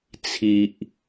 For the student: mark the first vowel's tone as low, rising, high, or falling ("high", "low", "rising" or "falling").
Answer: low